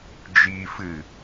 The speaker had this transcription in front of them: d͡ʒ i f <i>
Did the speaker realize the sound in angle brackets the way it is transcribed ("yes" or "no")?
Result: no